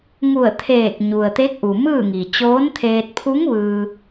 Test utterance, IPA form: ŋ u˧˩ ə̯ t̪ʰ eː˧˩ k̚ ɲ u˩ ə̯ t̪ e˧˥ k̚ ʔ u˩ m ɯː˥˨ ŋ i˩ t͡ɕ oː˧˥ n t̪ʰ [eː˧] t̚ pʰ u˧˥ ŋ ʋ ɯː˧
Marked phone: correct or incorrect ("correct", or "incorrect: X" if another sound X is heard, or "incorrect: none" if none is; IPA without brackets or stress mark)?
correct